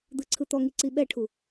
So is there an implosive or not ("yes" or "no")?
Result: yes